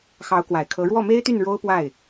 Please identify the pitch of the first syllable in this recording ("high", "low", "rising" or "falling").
rising